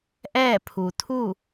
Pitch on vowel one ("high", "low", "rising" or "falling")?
falling